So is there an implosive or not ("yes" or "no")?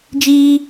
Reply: no